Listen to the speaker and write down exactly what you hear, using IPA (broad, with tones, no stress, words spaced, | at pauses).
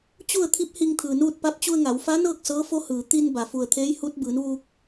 t͡ɕu˥˨ə̯t̪ʰi˧˥p̚ hi˧ŋt̪ʰɯː˩nuː˥˨t̚pa˧˥p̚ t͡ɕu˧ə̯ŋa˩˧wfa˧˥nɤː˥˨k̚ sɤː˧˥fo˧˥ hɯː˩ t̪i˧n ba˩fu˧˩ə̯t̪ʰeː˧˥j hu˧˥t̚ bɯː˩˧nʋuː˧k̚